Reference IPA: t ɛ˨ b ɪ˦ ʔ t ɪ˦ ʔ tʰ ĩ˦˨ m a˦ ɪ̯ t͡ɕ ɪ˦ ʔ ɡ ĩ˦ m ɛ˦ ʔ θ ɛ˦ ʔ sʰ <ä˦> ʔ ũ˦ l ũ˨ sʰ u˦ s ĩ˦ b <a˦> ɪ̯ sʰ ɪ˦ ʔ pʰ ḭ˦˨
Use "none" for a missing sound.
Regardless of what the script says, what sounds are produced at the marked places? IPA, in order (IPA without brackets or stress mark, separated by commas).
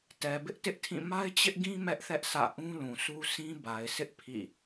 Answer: ä̰˦˨, a˨